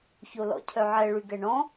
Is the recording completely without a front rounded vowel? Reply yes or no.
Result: no